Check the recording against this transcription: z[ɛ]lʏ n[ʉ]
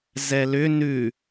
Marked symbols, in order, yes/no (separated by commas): yes, yes